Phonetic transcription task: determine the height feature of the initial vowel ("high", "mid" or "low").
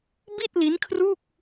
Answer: high